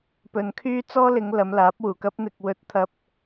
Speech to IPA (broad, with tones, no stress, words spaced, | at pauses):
pɵ˨nkʰyː˥t͡sɔː˥lɪ˨˧ŋ lɐ˨˧mlaː˨˥p̚wuː˨˩kɐ˥p̚ n̪ɪ˧k̚ wɵ˧t̚t̪ʰɐ˧p̚